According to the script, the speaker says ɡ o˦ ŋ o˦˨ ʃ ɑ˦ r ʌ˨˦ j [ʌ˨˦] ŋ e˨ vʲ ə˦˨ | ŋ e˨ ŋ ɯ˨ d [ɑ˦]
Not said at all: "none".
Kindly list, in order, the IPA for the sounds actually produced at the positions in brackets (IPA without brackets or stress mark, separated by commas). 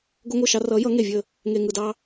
ʌ˨˦, ɑ˦